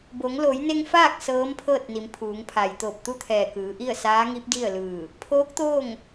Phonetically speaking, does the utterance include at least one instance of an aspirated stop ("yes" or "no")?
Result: yes